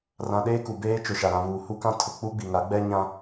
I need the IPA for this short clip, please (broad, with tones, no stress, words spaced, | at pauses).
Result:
rã˨ ɗeː˦ku˨ beː˦t͡ʃʊ˨ ʃa˨ɾã˨ βuː˨hu˦kã˦ tʰʊ˨ k͡pu˦ɡ͡bi˨ŋa˨˦ɡ͡bɛ˦ ɲã˦